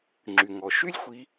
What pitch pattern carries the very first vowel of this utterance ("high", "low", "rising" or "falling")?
low